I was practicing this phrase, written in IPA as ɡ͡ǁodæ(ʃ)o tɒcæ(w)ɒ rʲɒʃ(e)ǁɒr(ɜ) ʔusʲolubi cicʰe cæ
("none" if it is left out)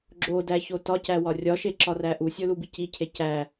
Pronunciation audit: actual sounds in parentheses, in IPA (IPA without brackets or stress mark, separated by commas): ç, w, e, æ